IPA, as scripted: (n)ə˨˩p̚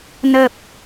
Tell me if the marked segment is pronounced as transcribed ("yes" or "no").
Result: yes